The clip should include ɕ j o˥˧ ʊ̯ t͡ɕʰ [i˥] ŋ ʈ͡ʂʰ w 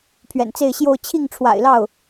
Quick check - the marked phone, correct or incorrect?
incorrect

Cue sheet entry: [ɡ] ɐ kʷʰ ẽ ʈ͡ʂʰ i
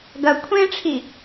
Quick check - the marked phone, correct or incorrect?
correct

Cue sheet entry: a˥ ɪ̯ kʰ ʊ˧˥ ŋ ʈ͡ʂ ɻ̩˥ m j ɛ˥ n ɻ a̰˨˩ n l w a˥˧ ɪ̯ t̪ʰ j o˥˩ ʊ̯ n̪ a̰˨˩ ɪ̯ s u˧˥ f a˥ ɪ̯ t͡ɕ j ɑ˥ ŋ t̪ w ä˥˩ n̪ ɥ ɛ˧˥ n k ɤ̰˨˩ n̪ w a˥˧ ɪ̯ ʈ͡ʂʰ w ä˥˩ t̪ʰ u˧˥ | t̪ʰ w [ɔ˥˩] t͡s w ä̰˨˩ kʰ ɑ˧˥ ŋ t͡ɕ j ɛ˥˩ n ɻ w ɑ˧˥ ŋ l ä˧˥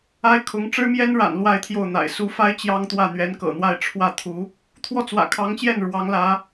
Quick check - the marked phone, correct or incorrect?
correct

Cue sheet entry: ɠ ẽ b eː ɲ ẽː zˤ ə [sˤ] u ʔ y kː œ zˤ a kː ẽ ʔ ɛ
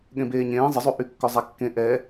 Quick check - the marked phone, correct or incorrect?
incorrect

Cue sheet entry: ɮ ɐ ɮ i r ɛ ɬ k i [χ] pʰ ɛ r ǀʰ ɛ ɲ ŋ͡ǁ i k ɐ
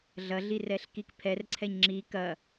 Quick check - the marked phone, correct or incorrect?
incorrect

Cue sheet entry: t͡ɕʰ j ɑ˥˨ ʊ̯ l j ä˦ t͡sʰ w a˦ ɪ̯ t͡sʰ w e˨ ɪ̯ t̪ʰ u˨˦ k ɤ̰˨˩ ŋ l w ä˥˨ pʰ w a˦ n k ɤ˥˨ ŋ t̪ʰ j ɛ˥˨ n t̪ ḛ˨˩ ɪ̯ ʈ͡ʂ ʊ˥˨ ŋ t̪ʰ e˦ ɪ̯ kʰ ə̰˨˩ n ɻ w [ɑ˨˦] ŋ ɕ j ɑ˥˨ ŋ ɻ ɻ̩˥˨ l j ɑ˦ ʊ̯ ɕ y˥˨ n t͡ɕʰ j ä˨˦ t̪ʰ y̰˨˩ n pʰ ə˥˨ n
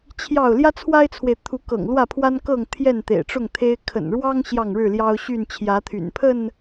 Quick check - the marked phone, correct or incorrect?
incorrect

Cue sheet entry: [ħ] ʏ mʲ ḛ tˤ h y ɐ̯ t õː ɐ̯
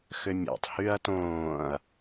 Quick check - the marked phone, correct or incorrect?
incorrect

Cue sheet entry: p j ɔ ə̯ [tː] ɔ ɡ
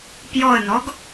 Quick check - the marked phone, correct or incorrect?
incorrect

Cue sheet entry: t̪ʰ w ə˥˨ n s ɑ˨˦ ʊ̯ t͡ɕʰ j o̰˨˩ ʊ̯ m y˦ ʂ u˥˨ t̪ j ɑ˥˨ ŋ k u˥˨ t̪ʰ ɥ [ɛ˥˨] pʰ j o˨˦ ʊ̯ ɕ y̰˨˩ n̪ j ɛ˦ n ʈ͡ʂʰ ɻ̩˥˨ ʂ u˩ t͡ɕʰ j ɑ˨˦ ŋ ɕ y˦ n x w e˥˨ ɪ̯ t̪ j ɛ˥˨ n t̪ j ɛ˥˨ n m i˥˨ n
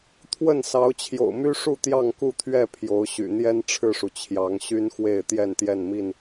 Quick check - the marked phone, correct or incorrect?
correct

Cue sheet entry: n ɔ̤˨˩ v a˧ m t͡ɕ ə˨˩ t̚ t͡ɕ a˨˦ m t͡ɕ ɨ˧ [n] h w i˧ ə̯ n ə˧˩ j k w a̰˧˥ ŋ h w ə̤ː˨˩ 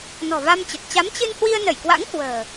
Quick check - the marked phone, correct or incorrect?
correct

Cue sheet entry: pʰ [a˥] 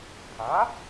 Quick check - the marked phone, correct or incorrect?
incorrect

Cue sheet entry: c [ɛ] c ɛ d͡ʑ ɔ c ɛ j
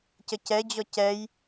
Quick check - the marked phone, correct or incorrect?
incorrect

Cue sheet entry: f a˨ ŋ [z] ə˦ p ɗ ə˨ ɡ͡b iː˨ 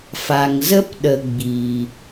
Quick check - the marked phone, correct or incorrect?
correct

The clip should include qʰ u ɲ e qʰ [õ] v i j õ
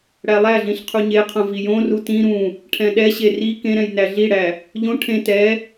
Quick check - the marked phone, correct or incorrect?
correct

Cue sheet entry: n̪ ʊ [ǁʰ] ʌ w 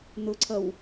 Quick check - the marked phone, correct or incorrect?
incorrect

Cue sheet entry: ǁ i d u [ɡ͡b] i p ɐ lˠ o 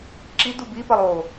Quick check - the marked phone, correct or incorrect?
incorrect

